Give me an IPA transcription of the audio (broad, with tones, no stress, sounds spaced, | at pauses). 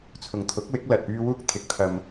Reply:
t͡sʰ ʊ˨ ŋ t̪ʰ ʊ˨˥ k̚ w ɪ˨˥ k̚ l ɐ˨ t̚ p yː˥ w uː˥ k̚ t̪ʰ ɪ˨˥ k̚ t̪ʰ ɐ˧ m